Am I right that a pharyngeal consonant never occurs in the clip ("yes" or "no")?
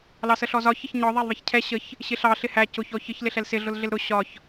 yes